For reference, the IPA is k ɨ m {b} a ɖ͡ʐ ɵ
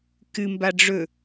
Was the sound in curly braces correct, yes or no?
yes